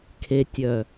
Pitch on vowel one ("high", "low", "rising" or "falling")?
low